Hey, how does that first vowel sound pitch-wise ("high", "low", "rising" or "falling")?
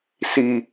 low